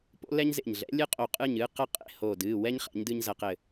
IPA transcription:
p o̰˥ l ɛ˥ ɲ z ḛ˧˩ ɲ ɮ ɛ̰˨˥ lʲ ɨ˥ qʼ o˧˩ qʼ ɨ˥˨ ɲ ɨː˥ q ɐ˥ qʼ ḛ˥˨ h oː˧˩ d ɨː˩˧˩ w ɛ˥ ɲ χ ɛ̰˨˥ ɲ d ɨː˥ ɲ z ɐ˧ q ɘ˧˩

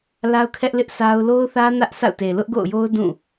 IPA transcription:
l a˦ ʊ̯ kʰ ɛ˦ ʔ l ɪ˦ ʔ sʰ a˦ ʊ̯ l o˦ ʊ̯ θ ä˦ n ä˦ ʔ sʰ a̰˦˨ ʊ̯ t e˨ l ʊ˦ ʔ ɡ o̰˦˨ ʊ̯ j o˦ ʊ̯ d ũ˦˨

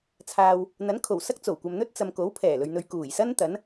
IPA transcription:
t͡sʰ aː˨ w | n̪ ɐ˨˥ n kʰ o˨˩ w s ɐ˥ k̚ t͡s o˨˩ w kʷ ɐ˨ m n̪ ɵ˥ t̚ t͡s ɐ˨ m k o˨˥ w pʰ ɛː˨˩ l ɵ˨ ɥ n̪ ɵ˨ ɥ k uː˨˩ j s ɐ˥ n t̪ ɐ˨˥ n

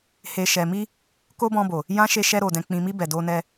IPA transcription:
h e˨ ʃ ɛ˨ m i˧ | k o˦ b ɔ̃˧ b o˨ | j ã˦ ʃ e˧ ʃ ɛ˧ ɾ o˨ d ɛ̃˨ k͡p ĩ˨ m i˧ b ɛ˨ d o˧ n ɛ˧

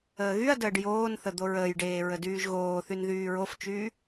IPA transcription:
əː ɣ y ɐ̯ d əː ɖ j oː n θ ə d̪ o ɹ əː j ɖ eː ɹ ə d yː ʒ ɣ oː θ y n ð yː ɹ o f t͡ʃ yː

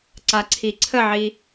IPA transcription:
ǀ a ǀʰ i ǀʰ ə ʕ i

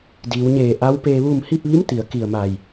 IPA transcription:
d iː˩˧ w ɲ eː˧˩ ʔ a˧˥ w p eː˧ ʋ u˥˨ m h i˥˨ p̚ ʋ i˧˥ m t̪ i˩˧ ə̯ k i˧˩ ə̯ m aː˧˩ j

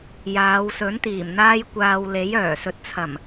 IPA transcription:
j aː˨˧ w s ɵ˨˥ n t̪ iː˨˩ m n̪ aː˥ j kʷ aː˧ w l e˨˥ j œː˨˩ s ɵ˨˥ t̚ t͡sʰ ɐ˨˩ m

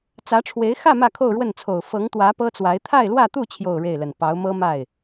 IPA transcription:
t͡s ä˧˥ ʈ͡ʂʰ w e˧˥ ɪ̯ x ä˥˧ m ä˥˧ kʰ o˥˧ ʊ̯ ɻ w ə˥˩ n t͡sʰ o˨˩ ʊ̯ f ɤ˧˥ ŋ t̪ w ä˧˥ p ɤ˥ t͡s w a˧˥ ɪ̯ t̪ʰ a˥˧ ɪ̯ l w ä˥˧ t̪ u˥˧ t͡ɕʰ j o˥˧ ʊ̯ ɻ e˥˩ ɪ̯ l ə˨˩ n p ɑ˧˥ ʊ̯ m ɤ˥ m a˥˩ ɪ̯

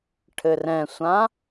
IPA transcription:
ʈʰ ɘ r ɛ̃ sʷ ã

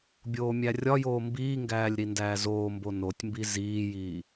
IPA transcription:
bʲ oː mʲ æ rʲ ɒ j oː m b iː ŋ ɡ æː lʲ ɾ i n d æː z oː m b o n o tʲ m b i z iː j iː

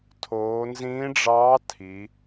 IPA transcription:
tʰ oː˩˧ n z ĩː˧˥ ɖ͡ʐ ɑː˧˥ tʰ i˩˧

